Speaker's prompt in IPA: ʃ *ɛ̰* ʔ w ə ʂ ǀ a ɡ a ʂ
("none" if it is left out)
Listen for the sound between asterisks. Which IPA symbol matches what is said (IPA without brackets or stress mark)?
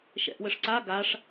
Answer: ɛ̰